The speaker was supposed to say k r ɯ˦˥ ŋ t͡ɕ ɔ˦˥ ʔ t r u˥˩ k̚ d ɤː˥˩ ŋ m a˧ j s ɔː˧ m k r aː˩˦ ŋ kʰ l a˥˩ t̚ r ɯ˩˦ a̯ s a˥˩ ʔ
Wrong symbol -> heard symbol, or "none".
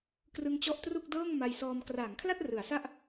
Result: none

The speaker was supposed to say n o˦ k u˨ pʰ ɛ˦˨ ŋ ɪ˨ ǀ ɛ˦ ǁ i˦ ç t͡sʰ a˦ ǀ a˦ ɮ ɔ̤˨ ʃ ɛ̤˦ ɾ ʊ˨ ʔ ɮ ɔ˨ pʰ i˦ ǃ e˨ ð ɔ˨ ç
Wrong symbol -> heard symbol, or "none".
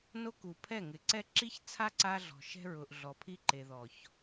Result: ɾ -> ɹ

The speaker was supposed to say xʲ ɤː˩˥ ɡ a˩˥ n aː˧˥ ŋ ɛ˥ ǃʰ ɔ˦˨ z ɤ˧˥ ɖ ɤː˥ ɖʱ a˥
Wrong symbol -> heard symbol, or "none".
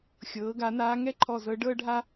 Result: none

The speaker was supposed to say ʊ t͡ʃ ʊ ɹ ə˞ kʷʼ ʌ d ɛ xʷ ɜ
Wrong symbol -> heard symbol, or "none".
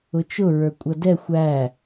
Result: ɜ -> æ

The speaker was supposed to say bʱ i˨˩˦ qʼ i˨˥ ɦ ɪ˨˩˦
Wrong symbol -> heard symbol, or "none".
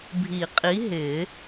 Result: none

